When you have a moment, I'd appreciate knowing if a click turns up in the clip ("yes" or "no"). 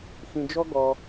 no